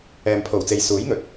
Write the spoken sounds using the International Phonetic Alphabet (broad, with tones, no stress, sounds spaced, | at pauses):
ɛː˨ m pʰ o˨˩ w t͡s e˨ j s uː˨˥ j ŋ ɵ˨ t̚